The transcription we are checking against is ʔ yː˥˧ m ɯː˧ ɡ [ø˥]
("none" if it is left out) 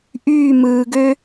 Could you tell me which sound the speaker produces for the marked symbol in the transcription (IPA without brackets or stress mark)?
ø˥